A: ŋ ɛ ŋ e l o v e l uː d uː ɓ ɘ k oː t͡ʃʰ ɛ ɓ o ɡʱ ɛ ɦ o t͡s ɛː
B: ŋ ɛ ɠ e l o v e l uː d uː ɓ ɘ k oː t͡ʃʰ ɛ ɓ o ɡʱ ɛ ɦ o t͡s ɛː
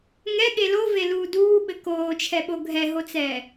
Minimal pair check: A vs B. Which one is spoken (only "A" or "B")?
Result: B